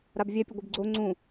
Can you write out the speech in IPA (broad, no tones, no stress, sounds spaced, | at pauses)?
ɾ a b vʲ ɛ pʲ ɛ ɡʷ ɯ b ɡ͡ǀ o ŋ͡ǀ ũ